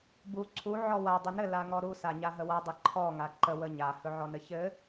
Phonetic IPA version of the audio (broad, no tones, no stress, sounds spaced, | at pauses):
b u ǀʰ u ʕ ɔ w a dˤ ɵ n ɘ l a ŋ ɔ ɾ u s a ɲ a ɦ ə w a dˤ ɘ ǃʰ ɔ ŋ a ǃ ə w ə ɲ a h ɵ ʕ ɔ n ɘ ç ɘ